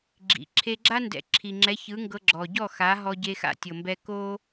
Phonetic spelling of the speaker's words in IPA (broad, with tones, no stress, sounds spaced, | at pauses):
ɡ͡ǁ ḭ˩ ǁʰ e˧ ɡ͡ǁ a˥ n d ɛ̰˩˥ ǁʰ i˩ ŋ͡ǁ ɛ˩˥ ç ɯ˩˥ ŋ ɡ ɤ˧ ɡ͡ǁ ɔ˩ ɟ ɔ˥˩ x a˩˥ ɦ ɔ˧ ɟ e˧ x a̰˥˩ tʲ ɤ˩ m b ɛ˧ k o˥